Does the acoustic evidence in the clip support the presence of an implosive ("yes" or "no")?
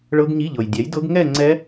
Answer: no